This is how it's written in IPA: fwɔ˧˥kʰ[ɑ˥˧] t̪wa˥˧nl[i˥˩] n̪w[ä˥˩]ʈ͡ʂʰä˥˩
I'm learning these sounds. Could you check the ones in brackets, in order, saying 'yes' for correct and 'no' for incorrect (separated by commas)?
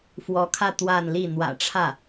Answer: no, yes, no